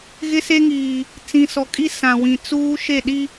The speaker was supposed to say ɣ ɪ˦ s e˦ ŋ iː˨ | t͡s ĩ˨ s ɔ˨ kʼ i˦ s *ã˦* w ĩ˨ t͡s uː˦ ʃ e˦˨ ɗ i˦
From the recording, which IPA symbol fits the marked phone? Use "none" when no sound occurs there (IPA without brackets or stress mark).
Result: ã˨